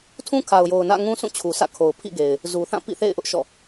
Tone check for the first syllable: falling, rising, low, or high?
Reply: high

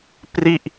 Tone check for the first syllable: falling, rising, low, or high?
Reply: falling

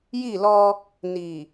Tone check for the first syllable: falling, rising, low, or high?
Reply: falling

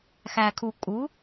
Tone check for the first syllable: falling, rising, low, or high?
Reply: low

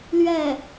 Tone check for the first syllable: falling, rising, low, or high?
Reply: falling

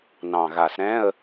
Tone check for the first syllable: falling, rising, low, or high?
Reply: low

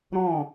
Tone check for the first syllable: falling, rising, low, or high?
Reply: falling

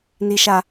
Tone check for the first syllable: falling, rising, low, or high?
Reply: high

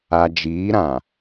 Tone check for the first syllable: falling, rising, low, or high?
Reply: low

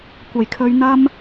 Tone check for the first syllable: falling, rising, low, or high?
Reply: low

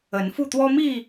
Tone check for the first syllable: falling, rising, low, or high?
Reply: rising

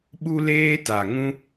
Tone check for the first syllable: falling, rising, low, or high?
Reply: high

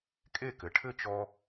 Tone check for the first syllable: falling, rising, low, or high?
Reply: falling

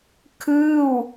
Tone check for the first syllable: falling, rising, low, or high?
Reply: falling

